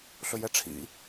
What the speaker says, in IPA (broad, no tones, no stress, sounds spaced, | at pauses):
ɬ ɵ j ɛ ʈ͡ʂʰ ḭ